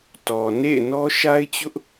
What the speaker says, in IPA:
tɔ˨ nḛ˦˨ɪ̯nɔ˦ ʃa˦ɪ̯t͡ɕʊ˦ʔ

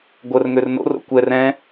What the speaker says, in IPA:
ɡʷərŋør no̰ro̰ kʷɛr ɛ̃

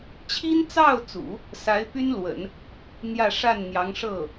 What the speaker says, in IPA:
t͡ɕʰi˥nt͡sɑ˥˩ʊ̯t͡sṵ˨˩˦ | sa˧˥ɪ̯py˥nlwə̰˨˩˦n | n̪jä˥˧ ʂa˥˩nn̪jɑ˧˥ŋ ʂɤ˥˩

